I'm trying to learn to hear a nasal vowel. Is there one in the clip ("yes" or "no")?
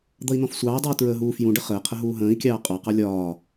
yes